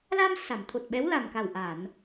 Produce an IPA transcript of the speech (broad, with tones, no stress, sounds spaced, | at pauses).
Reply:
l a˧ m s a˨˩˨ m t̪ʰ o˨˩ t̚ ɓ ɛ˧˥ w l a˨˩ m k a˨˩ w ʔ a˨˩˨ n